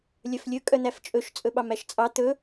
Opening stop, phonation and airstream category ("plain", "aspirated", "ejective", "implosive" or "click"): ejective